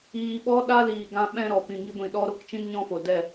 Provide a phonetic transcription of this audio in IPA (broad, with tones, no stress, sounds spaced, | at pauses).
iː˧ ɓ ɔ˦ ɗ a˦ l iː˨ ɡ ã˦ ɓ ɛ̃˦ ɾ ɔ˨ p ĩ˨ ŋ i˧ ɡʷ ĩ˨ ɗ ɔ˧ ɾ o˦ k t͡ʃ ĩ˦ n ɲ ɔ̃˦ f o˨ d ɛ˦˨